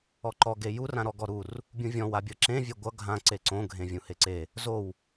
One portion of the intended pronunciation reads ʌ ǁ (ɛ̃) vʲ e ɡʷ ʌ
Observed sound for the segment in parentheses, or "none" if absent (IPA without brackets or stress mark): ẽ